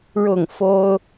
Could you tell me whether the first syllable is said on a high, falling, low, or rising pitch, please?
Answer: falling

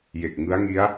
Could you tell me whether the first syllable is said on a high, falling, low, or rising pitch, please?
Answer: low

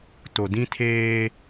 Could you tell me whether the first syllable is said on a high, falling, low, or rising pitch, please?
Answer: low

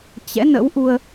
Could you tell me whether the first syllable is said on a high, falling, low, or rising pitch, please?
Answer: rising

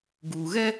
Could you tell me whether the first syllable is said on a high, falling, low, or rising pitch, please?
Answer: low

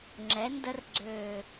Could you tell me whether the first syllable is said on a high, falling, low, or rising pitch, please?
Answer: rising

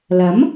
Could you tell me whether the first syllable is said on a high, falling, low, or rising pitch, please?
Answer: rising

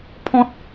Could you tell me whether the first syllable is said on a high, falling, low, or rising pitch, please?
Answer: high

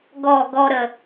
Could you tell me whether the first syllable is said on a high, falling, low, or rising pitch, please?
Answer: falling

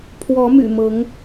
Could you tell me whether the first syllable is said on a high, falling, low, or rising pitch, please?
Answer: rising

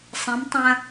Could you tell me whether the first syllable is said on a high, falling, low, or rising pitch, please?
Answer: rising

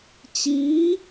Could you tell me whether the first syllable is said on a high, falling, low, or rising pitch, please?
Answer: rising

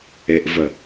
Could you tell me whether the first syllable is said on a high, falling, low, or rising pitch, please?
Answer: low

